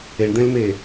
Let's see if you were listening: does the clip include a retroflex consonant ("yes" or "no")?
yes